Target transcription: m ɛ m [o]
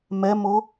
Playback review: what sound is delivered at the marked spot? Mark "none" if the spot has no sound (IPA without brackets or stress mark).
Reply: o